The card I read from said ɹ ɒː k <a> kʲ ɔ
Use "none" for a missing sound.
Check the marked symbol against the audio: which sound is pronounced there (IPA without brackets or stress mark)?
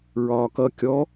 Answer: ʌ